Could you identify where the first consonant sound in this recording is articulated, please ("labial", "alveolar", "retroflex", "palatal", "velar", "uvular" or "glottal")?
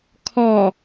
velar